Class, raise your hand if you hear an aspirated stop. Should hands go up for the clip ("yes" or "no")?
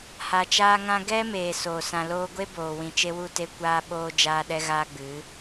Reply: no